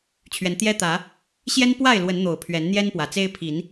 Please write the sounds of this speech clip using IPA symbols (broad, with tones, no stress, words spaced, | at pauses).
t͡ɕʰɥɛ˨˦nt̪jɛ˦t̪ä˨˦ | ɕjɛ˦npwa˥˨ɪ̯ lwə˨˦nn̪o˨˩ʊ̯ pʰɥɛ˨˦nn̪jɛ˦n pwä˨˩t͡se˦ɪ̯ pʰi˨˦n